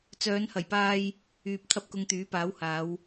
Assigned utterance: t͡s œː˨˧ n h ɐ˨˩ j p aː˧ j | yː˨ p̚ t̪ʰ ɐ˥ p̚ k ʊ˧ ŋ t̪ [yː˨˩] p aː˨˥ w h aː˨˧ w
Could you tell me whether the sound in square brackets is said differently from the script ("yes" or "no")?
yes